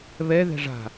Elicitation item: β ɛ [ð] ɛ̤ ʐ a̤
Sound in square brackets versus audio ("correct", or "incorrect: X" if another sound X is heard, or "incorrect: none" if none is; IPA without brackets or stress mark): correct